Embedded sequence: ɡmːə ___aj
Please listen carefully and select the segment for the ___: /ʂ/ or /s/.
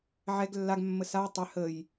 s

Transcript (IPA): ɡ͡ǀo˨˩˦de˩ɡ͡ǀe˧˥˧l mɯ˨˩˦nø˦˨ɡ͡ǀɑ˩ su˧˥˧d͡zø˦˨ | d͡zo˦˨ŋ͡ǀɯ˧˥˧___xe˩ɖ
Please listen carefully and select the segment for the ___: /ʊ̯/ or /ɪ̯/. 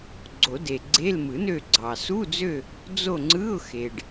ʊ̯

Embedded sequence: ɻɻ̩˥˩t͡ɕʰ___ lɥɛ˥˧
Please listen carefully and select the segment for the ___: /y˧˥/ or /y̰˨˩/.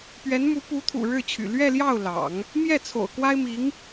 y̰˨˩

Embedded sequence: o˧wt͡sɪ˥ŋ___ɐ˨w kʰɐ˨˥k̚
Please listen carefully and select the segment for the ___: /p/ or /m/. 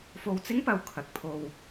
p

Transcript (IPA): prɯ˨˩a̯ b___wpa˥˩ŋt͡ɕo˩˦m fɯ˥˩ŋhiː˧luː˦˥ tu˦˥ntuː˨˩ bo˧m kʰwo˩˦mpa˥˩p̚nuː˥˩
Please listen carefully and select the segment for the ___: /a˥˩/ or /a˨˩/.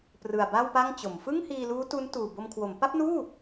a˥˩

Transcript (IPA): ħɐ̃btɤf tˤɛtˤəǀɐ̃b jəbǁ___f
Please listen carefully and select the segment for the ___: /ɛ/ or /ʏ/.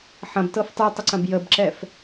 ɛ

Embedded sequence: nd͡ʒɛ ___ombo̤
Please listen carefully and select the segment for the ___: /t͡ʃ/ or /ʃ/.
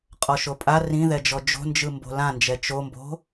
t͡ʃ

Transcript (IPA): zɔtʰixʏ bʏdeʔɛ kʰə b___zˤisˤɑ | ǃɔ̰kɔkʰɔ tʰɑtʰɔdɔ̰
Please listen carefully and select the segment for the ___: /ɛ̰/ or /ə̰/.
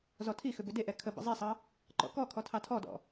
ə̰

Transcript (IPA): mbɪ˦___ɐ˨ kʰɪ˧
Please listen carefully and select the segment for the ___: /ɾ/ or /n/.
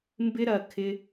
ɾ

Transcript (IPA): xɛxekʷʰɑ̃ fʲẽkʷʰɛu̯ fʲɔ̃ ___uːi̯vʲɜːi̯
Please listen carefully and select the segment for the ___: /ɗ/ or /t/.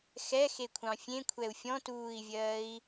t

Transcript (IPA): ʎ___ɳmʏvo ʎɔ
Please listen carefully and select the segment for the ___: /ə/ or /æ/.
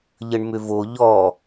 ə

